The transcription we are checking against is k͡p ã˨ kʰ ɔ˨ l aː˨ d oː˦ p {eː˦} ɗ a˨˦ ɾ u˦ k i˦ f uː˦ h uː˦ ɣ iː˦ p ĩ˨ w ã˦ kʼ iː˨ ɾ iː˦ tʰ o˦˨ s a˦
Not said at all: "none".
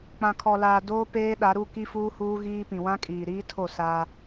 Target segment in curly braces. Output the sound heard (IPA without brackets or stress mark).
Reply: eː˦